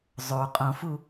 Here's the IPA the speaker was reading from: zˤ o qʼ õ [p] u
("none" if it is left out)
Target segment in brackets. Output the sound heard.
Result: f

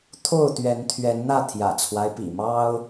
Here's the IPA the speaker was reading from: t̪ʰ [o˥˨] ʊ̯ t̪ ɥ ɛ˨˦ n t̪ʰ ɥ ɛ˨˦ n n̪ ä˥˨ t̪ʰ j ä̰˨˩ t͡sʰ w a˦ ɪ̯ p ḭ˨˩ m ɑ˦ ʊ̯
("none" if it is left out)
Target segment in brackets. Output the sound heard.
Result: o˥˨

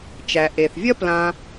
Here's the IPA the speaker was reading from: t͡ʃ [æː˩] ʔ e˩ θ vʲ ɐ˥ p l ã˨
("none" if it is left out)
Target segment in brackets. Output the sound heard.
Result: æ˩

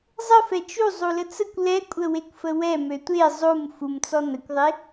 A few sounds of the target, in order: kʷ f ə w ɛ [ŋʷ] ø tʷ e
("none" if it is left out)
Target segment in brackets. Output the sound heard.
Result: m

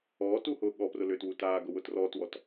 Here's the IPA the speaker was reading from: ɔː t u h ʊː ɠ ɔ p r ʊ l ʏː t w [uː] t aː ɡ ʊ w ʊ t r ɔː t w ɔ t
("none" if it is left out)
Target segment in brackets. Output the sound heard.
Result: u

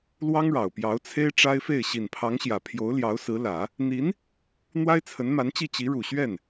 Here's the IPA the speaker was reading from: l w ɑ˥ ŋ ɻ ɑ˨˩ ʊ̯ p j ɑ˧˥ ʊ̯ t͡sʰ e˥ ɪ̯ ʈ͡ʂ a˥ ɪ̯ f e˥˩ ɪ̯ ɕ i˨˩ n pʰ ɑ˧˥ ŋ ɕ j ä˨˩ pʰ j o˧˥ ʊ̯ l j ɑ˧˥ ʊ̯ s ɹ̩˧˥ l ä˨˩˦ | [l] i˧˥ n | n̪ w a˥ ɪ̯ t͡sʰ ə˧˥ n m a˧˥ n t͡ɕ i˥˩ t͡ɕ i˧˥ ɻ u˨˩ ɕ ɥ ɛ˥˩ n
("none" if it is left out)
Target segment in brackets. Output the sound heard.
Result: n̪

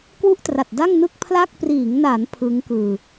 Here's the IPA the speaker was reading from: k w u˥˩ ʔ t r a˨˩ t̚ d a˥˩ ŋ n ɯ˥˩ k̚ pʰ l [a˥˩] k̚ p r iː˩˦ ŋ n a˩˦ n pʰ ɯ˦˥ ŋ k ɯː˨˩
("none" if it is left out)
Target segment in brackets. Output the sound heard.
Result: a˥˩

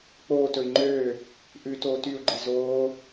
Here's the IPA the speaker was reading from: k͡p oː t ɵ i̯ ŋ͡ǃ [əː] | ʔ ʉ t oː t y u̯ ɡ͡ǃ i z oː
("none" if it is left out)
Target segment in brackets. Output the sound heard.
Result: øː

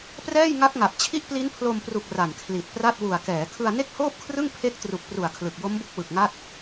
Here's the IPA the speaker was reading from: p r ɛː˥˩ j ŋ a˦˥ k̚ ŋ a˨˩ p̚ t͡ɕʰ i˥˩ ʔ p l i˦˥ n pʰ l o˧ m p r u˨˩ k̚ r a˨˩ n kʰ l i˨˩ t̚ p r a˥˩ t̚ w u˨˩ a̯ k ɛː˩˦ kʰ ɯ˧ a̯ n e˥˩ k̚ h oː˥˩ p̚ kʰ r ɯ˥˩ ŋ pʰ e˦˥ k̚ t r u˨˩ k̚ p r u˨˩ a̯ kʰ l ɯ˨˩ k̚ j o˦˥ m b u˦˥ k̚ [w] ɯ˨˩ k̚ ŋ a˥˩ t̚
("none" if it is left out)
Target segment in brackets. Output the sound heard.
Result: w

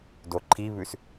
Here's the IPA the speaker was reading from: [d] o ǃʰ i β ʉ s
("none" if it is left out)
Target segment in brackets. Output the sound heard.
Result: d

